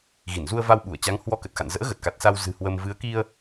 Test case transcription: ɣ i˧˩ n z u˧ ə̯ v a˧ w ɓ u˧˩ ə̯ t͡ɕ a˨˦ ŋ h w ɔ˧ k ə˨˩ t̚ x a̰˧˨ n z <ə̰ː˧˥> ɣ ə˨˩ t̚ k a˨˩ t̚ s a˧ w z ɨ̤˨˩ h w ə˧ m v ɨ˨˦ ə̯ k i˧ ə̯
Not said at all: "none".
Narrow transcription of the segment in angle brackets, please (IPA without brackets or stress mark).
ə̰ː˧˥